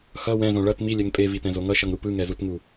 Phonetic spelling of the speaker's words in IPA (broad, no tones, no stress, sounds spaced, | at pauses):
x ʌ w ɛ̃ z õ ɭ ʌ t m i lʲ ɛ ŋ pʼ e v i t ɛ̃ z o ŋ ʌ ʃ ʌ ŋ ɾ u p ɯ ŋ ɛ z u t ŋ u